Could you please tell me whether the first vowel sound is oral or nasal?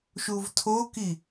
oral